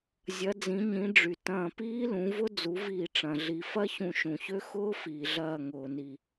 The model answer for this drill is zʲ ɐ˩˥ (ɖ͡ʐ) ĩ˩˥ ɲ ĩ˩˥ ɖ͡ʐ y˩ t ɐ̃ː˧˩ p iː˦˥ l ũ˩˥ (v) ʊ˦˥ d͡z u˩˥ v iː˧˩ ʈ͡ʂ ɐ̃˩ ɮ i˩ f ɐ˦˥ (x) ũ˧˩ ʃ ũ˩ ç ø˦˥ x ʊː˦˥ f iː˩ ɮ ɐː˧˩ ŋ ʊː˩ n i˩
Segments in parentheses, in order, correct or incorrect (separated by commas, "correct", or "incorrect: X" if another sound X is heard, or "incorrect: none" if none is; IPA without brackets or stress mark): incorrect: d͡z, correct, incorrect: ç